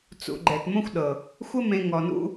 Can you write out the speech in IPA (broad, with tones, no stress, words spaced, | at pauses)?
t͡sṵ˨ ɡ͡ǃɛ˨tmõ˦xʷɗɤ˨ | xʷə˦ mẽ˧ŋɔ˨nṵ˦